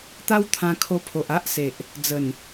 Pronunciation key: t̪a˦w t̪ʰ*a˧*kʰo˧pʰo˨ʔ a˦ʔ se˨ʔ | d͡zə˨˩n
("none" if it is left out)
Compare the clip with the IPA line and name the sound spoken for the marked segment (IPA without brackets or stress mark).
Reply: ã˧